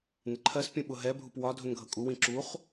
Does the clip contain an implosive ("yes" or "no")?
yes